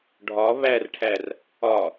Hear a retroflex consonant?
yes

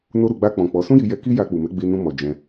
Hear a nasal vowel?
yes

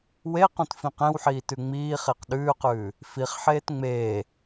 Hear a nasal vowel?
yes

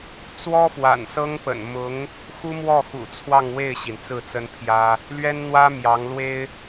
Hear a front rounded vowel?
no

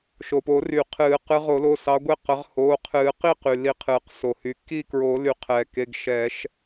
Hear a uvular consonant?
yes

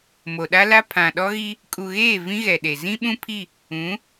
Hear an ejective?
yes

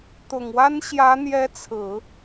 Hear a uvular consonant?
no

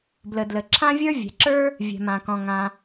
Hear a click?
yes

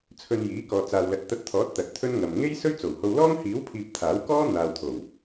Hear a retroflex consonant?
no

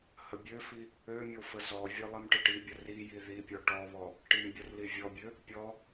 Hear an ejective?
no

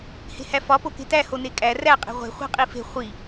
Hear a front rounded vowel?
no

